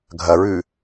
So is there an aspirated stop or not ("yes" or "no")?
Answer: no